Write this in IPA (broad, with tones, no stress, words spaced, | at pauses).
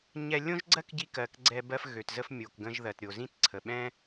ɲɛ˧ lʲõ˥ʒɡ͡ǀɜ˥kɟi˧ kɜ˩kɡ͡ǀɛ˧ bɜ˧fɣø˩tzə˧f mʲo˩kɡə̃˧ʒ ðɜ˩tɾʲo˩zĩ˥t ǀʰə˩ɓɛ̃˥